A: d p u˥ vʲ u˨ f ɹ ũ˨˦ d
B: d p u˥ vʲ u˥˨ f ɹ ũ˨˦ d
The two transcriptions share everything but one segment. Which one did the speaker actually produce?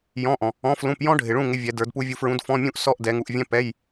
A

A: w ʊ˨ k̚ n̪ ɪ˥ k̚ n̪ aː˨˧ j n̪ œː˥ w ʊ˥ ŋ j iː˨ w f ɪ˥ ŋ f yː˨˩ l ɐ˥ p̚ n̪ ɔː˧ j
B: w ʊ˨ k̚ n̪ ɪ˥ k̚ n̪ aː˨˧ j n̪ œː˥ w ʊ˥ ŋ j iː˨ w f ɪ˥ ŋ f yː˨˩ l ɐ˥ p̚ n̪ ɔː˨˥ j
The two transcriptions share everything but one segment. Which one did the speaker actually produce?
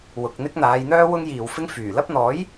B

